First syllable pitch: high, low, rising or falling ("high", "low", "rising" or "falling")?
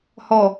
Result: low